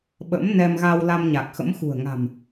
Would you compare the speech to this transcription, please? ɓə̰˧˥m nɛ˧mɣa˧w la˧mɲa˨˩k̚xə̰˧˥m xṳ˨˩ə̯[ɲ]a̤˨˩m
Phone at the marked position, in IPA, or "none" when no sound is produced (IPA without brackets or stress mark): ŋ